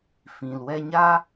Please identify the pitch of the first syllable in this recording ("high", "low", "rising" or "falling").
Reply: low